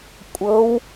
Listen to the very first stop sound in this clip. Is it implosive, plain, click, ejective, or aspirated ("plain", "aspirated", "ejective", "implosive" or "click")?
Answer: ejective